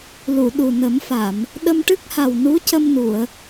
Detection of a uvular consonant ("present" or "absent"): absent